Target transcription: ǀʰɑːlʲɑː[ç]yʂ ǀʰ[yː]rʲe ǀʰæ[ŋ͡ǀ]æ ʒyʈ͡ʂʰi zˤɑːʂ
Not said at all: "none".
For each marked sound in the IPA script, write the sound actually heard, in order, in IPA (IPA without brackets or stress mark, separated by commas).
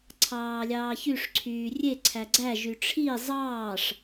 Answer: ç, yː, ɡ͡ǀ